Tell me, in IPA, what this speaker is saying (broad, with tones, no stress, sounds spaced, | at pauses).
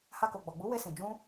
h a˧ k o˨ ɡ͡b ɔ˨ ɡ͡b u˨˦ w e˧ s ĩ˨ d͡ʒ ũ˧